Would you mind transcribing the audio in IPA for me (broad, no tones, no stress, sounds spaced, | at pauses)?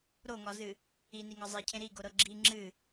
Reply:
ɾ o ŋ ɒ z ɨ | i n i ŋ ɒ zˤ i cʰ ẽ ɾ i ɡ o ɾ ɤ ɡ͡ǁ i ŋ͡ǁ ɨ